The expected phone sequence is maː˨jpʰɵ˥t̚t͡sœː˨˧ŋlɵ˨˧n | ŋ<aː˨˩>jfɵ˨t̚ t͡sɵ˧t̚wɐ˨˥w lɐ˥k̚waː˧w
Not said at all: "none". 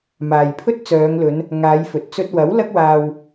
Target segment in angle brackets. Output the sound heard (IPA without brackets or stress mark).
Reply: aː˨˧